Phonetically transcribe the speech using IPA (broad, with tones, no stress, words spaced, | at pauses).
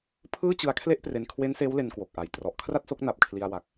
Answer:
pʰɯː˥˩t͡ɕɯ˧a̯ kʰle˥˩ʔpre˧n kʰwe˦˥nseː˦˥w le˧nkwo˨˩k̚ʔa˨˩j trɔ˨˩ʔkʰra˥˩t̚so˦˥k̚ na˨˩p̚kʰli˧a̯wa˨˩k̚